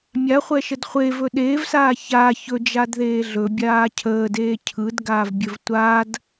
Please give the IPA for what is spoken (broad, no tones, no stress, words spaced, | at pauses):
mʲaχʷɛʃəd χʷevɵ ɗeːvsaː ça çɵd͡ʒadðeː ɮɵbʲaː cʰəːdeː cʰɯdɡaːvbʲɵv tʷad